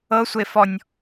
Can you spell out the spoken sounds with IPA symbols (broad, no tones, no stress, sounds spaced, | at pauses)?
ɤ sʷ e f ɔ nʲ